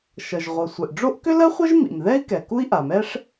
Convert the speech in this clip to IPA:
ʃʌ˩ʒʁʷʌ˩ sʷɛ˩ʔɖ͡ʐo˥ʔ kʏ˥lɜ˥χʷʌ˥ʒ mḭ˩mðɛ˥i̯ kɛ˩ku˥i̯ʔa˩mɛ˥ʂ

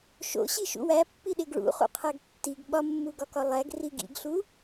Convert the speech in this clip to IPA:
ʃo̰ɕi ʃṵwæpːiɗeɡ ɭṵχṵqʰæɡ tːiɡ ɓɒmːuɡɒkɒ lˠæɡ riɡḭɡɬu

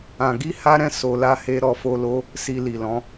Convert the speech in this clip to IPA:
ã˧ɡi˦ha˦ɾɛ̃˦ so˧la˦he˦ ɾɔ˦fo˦lo˦ | si˧li˨lɔ̃˨˦

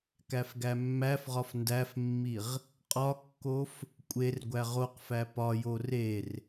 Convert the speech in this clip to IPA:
kæfɡæmːæfʁɒf ndæfmːiʁ | qʼɒkːof | kʷʼerɡʷæ ʁoqfæ pɒjo rer

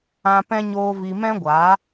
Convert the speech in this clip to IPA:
ã˧pɛ̃˦ ɲoː˦vi˧ mɛ̃˦ɡʷa˨˦

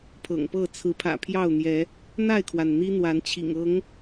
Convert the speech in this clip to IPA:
pʰɤ̰˨˩ŋpɤ˥˨ t͡sʰɹ̩˨˦pʰä̰˨˩pʰjɑ˥˨ʊ̯n̪jɛ˨˦ | n̪a˥˨ɪ̯kʰwa˩n n̪i˦n̪wa˨˦nt͡ɕʰḭ˨˩ŋɤ˨˦ŋ

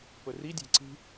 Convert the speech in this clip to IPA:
pɵridʲæ̤ ǀi̤

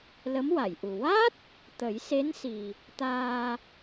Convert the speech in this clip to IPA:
lə˧˥mwa˨˩˨j ʔu˨˩ wa˦˥t̚ | t̪ə˨˩˦jse˧˥nsi˨˩ | t̪aː˧

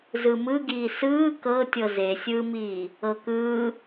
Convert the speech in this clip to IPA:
zɯmɯɡiː sɯː kɤtʲɤ zesʲɯːmiː | ɤkɯː

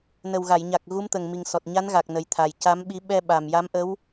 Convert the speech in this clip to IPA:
nə˨˩wɣa˨˩˨jɲa˨˩k̚ ɣu˧˥mt̪ə˨˩ŋmi˨˩ŋ sɔ˨˩t̚ɲa˧˥nɣa˨˩k̚ nə˨˩jt̪ʰa˨˩j ca˧˥mɓi˧˥ ɓɛ˧ɓa˨˩m ja˧˥mʔə˧˥w

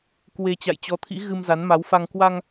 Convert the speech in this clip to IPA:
kwe˧ t͡ɕa̰˧˨jt͡ɕɔ˨˦t̪ʰḭ˧˥ ɣɨ˧mza˨˦nma˨˦wfa˧ŋ kwa˧ŋ

